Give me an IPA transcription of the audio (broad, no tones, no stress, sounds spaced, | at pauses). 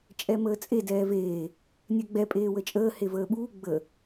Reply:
t͡ʃʼ ɛ m əː t͡sʼ e d ɛː v eː | nʲ ɛ ɡ͡b ɛ pʼ eː w ə t͡ʃʼ əː h e v əː ɓ uː ɡ͡b ə